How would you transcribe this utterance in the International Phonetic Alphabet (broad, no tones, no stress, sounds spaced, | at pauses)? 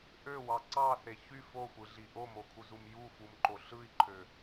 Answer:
ʔ ø w ɑ ǀ ɑ θ e ç y f o xʷ ɯ ɮ i ʔ o m o kʰ u z u m j u f u m ǃ o ɬ ɯ i̯ ǃʰ ø